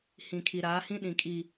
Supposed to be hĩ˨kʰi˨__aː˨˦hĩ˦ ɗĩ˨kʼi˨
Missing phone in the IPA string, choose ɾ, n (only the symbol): ɾ